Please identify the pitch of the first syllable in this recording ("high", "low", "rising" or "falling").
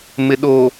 low